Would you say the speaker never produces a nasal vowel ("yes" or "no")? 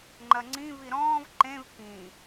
no